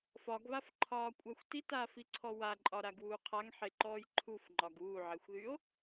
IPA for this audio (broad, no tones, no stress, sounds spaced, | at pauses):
f ɒ ɡ β a f ǃʰ ɒː kʷʼ a xʷ t i t aː f i ǀʰ ɔ w a ǃʼ ɒ ɾ a ɡ w uː qʰ a ŋ ħ e ǃ ɔː j ǃʰ u f ŋ͡ǃ ɒ ɡ uː ʕ e xʷ ð y o̯